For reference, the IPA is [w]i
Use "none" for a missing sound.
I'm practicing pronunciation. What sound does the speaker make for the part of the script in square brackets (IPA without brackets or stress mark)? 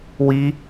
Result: w